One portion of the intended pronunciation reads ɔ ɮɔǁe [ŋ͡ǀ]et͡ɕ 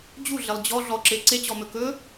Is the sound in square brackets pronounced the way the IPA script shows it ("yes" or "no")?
no